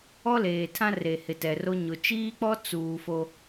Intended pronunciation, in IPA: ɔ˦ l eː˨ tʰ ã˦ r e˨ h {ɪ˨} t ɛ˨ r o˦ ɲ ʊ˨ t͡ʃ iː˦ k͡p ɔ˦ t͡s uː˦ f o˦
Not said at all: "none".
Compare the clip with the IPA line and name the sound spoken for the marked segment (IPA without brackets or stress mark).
ɪ˨